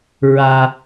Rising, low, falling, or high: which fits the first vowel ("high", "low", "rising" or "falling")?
low